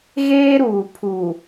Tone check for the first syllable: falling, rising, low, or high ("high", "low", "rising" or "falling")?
high